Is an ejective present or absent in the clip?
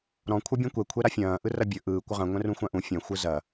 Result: absent